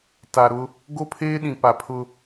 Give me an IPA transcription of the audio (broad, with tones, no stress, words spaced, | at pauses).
ta˨ ɾʊ˦ | ɡo˦pʰeː˦ ɗĩ˨pa˨pʰʊ˦